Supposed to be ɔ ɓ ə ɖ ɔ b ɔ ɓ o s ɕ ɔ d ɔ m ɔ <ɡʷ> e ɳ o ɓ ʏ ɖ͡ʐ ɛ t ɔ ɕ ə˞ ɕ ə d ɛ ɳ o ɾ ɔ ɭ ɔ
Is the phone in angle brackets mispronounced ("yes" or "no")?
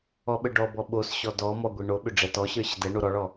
no